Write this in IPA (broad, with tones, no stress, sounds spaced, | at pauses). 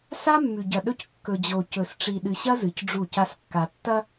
s a˦ mː ʉ˨ ɟ ɐ˨ ɗ ɵ˦ c kː ɵ˨ d͡ʑ o˨ c ɵ˨ s ʈ͡ʂ i˨ ɗ ɨ˨ ɕ ɐ˦ z ɨ˨ c ɖ͡ʐ u˦˨ c a˦ s kː a˨ tː ɐ˦